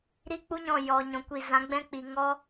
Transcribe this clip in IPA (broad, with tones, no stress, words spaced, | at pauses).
ɾi˦k͡pu˦ ɲɔ̃˦˨ jɔ˨ɲɔ̃˨ kʷi˨zã˨˦ɡ͡bɛ̃˦ k͡pi˨ŋɔ˦